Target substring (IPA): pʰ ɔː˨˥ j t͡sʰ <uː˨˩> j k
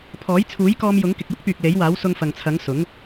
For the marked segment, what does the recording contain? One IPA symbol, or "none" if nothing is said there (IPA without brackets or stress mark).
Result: uː˨˥